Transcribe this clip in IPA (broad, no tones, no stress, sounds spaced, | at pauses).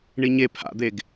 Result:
ɳ i ɲ e pʰ a̰ d̪ e ɡ